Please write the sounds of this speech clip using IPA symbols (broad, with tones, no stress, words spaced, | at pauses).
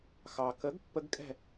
xɑ˩kə˩˥ɡ pːə˦˥ɡkʼɛ̤˥˩